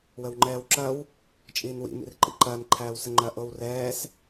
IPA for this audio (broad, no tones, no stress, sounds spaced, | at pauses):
w ə w ŋ͡ǃ ɛː w ǁ ɐ w | t͡ʃʼ iː n w ḭ m ḭ r ǃ ḭ ǃ ɐː n ǃʰ æː w s ə ŋ͡ǃ ɐ ʔ o w r ɛː s